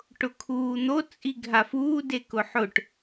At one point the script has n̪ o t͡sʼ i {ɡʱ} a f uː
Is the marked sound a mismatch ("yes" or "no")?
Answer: no